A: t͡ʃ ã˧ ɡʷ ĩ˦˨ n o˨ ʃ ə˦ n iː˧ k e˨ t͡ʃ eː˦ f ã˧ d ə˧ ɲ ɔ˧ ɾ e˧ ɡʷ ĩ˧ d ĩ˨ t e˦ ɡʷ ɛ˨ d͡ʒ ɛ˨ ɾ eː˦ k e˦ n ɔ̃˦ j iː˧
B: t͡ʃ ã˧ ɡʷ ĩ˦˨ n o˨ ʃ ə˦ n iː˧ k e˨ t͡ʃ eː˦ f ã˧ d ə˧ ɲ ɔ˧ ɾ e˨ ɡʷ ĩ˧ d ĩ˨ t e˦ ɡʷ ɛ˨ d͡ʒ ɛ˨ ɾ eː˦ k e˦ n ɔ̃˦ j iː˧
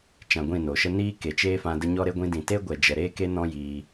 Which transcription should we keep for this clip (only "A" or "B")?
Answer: A